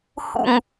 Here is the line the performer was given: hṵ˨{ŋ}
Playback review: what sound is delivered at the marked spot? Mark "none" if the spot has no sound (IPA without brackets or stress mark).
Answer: ŋ